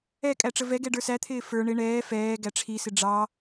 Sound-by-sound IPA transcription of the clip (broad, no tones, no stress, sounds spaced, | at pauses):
ɛ kʼ æ ʈ͡ʂ ə v ɛ ɡ ɛ ɖ ə˞ s æ t̪ʰ ɪː f ə˞ ɳ ɪ ɳ ɛː f ɛː ɡ æ ʈ͡ʂʰ i s ɪ ɖ͡ʐ ɑ